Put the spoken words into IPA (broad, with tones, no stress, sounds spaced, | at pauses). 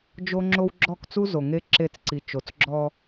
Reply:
d͡ʒ o˦ ŋ͡ǁ o˦ w ɡ͡ǁ ɔ˦˨ k t͡s u˦ z o˨ ŋ e˦ ǁ e˦˨ t͡s ǀ i˨ t͡ʃ o˨ t͡s ɡ͡ǁ ɔ˦